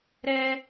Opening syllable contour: high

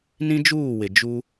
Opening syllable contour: high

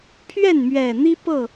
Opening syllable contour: falling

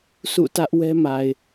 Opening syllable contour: falling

